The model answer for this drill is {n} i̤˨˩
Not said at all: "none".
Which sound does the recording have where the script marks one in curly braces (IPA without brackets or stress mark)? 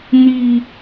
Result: n